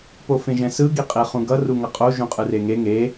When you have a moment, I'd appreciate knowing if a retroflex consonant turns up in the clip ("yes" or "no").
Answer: no